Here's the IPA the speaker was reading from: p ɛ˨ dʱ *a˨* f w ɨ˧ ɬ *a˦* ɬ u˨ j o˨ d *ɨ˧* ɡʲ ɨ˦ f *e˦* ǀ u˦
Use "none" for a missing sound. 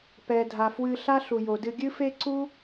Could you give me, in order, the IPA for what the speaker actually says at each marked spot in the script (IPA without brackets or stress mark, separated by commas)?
a˨, a˦, ɨ˧, e˦